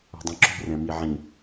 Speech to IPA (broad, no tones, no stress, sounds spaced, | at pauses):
o̤ dˤ ĩ ǁ ṳ r ɛ̃ m i ʕ ĩ